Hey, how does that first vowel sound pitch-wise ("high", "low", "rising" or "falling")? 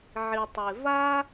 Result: low